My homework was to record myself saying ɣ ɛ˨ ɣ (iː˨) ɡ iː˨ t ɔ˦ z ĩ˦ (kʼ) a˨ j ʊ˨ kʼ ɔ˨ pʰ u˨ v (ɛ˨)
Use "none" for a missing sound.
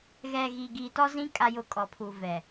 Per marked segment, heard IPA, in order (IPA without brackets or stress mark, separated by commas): i˨, kʼ, ɛ˨